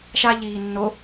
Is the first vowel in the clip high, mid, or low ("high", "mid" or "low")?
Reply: low